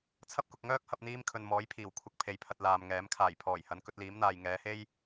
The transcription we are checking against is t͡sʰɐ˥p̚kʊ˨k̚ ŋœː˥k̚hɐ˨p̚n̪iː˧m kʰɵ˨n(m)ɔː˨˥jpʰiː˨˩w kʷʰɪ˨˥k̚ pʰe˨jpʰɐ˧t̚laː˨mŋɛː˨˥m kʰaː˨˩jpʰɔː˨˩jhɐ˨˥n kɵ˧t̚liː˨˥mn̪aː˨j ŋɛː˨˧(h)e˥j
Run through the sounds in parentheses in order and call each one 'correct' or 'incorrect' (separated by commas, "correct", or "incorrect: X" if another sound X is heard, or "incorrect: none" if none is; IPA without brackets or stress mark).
correct, correct